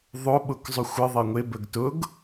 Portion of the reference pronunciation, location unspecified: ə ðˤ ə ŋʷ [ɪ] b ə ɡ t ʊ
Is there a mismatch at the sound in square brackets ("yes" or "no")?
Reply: no